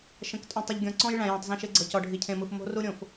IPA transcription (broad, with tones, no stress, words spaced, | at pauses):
ʃə̃˨˦k tʼũ˨tˤə˨ʎɡʲɔ̃˨ǀɔ̃˦j ɭæ̃˨jẽ˨tˤzə̃˦˨ ʃe˦ɡ͡ǀɤ˨cɔ˨ ɖʱi˨cʰẽ˨mɯ˨f mo̤˦ ru˦ɾʲõ˨f